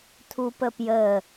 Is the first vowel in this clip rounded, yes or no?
yes